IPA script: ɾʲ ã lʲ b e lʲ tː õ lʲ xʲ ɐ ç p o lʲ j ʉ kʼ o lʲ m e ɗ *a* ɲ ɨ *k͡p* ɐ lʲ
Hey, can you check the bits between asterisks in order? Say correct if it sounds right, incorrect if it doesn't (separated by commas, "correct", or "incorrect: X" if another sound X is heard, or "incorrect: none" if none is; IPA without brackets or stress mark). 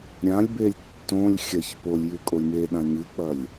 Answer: incorrect: ã, correct